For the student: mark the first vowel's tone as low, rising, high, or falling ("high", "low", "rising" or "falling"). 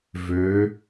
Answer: rising